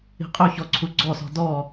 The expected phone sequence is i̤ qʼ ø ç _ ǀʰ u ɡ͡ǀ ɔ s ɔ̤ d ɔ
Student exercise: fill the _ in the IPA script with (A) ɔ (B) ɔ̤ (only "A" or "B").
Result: A